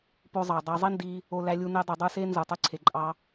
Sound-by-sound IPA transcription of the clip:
p o˧ zˤ ɑ˩ dˤ ɑ˧ zˤ i˥ n d i˧ | o˧ l æ˧ lʲ u˧ n e˧ dˤ ɯ˩ dˤ ɯ˧ s e˥ n z ɯ˩ tˤ e˧ ǀʰ e˩ ǃʼ ɑ˧

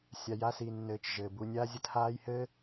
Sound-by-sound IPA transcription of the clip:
sʲ a˨ j a˦ s i˨ nː ɘː˨ t͡ʃ ʒ ɘː˩ b u˨ nʲ aː˦ zʲ ə˦ t h aː˦ j h ɘ˥

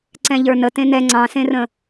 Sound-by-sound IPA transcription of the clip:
ǀ ɛ̃ ʎ ə˞ n ə t ẽ n ɛ ŋ͡ǀ ɑ̃ s ẽ r ə̃

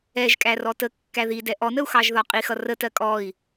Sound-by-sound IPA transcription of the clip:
ɛ ʒ kʼ æ r ɔ t ə kː æ ð i d ɛ ʔ ɔ n ə u̯ x ɑ ʒ ð ɒ qʼ i x ʌ r ə t ɜ kʼ ɔ i̯

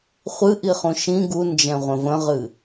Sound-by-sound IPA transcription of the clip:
χʷ ɨ ʔ i χ ũ ʃ ĩ ɡ u n d͡ʒ ɛ̃ ʁʷ ə̃ v ə̃ ʁ ɨ

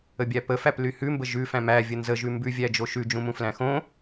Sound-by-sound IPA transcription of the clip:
ə bʲ æ p ə f æ p l y h ʉ m b ə ʒ ʉ f æ̃ m æ vʲ ə n z ə ʒ ʉ m b ʉ vʲ æ d͡ʒ o ʃ ʉ d͡ʒ ũ m ũ f l æ̃ x õ

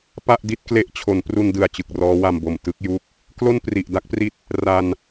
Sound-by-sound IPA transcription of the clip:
p a˥˩ ʔ d i˥˩ t̚ k l e˦˥ ʔ t͡ɕʰ o˩˦ n p r u˧ n d ɯ˨˩ a̯ t͡ɕ ɯ˨˩ k̚ r ɔː˦˥ w a˧ m b o˨˩ m t ɯ˥˩ k̚ j u˦˥ k̚ | k l o˥˩ n p r i˨˩ ʔ d a˥˩ k̚ p r i˦˥ t̚ | r a˧ n

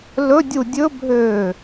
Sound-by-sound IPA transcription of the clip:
l ɵ dʲ u dʲ ɵ bʱ øː

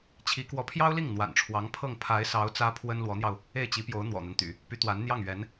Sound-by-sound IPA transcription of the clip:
t͡ɕʰ i˧˥ k w ɔ˧˥ pʰ j ɑ˥ ʊ̯ l i˥˩ ŋ n̪ w a̰˨˩ n ʈ͡ʂʰ w ɑ˧˥ ŋ pʰ ɤ˥˩ ŋ pʰ a˧˥ ɪ̯ s ɑ˧˥ ʊ̯ t͡s ä˥ pʰ w ə˥ n l w ɔ˧˥ n̪ j ɑ˧ ʊ̯ | e˥˩ ɪ̯ t͡ɕ i˧˥ p j o˧˥ ʊ̯ n̪ w ɔ̰˨˩ n̪ a˦ n t̪ y̰˨˩˦ | p y˧˥ t̪ w a˧˥ n n̪ j ɑ˥˩ ŋ ɥ ɛ˧˥ n

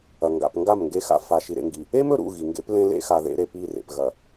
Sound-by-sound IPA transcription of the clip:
ɐ˨ ŋ ɡ a̰˨ p ŋ ɡ a˦˨ m ŋ ɡ e˦ x a̰˦ f a˨ ʃ i˨ ɾ ḛ˨ ŋ ɡ i˨ | e˦ m ɵ˨ ɾ ṵ˦˨ ɣ i˨ ŋ ɡ ḛ˦ p l ẽ˦ l ḛ˦ x a˨ ð ḛ˨˦ ɾ e˨ p i˦˨ r ḛ˨ p ɣ ɐ˨

